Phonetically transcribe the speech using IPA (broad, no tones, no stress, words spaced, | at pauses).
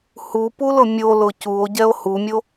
hupulʊ mʲolʊ cuo̯ɟɛo̯ humʲo